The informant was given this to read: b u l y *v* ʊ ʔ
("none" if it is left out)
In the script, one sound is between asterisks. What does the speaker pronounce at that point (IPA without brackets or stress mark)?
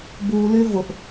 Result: v